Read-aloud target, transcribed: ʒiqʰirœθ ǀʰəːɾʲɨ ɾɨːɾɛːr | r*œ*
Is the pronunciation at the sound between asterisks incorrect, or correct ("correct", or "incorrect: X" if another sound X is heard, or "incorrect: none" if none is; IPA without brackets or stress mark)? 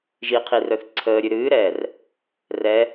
incorrect: ɛ